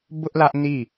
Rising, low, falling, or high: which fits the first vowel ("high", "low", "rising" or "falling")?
high